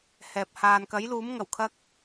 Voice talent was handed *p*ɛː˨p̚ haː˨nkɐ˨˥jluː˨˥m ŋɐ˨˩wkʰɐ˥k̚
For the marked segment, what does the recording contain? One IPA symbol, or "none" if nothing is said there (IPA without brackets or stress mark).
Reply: h